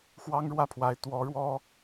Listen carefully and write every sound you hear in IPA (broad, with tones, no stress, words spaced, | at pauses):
xwɑ˥ŋɻwä˥˩pʰwa˧˥ɪ̯ t̪wɔ˧˥ɻwɔ˥